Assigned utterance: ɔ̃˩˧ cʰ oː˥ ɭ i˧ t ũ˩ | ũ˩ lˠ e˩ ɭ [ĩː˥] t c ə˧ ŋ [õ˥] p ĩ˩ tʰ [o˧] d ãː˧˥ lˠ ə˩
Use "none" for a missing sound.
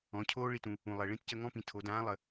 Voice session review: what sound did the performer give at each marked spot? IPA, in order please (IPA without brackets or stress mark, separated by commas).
ĩ˥, ɔ̃˥, o˩˧